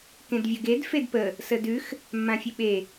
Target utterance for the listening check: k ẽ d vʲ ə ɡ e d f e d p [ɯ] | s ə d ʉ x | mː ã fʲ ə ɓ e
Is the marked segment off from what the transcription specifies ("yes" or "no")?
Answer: yes